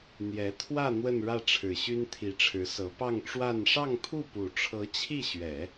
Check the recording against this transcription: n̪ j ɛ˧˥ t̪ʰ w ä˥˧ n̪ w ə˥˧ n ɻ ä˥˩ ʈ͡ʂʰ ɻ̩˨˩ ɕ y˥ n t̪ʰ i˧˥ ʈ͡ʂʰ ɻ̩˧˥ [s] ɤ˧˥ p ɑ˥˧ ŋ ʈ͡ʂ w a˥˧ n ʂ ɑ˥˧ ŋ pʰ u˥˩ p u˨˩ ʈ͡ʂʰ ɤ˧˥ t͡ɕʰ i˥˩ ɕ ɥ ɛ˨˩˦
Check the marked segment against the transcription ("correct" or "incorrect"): correct